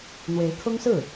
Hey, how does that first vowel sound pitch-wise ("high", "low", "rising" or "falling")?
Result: rising